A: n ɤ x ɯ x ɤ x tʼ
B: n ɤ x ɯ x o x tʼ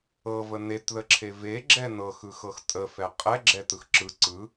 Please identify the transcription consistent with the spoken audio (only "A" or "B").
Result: A